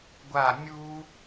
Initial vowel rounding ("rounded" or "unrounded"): unrounded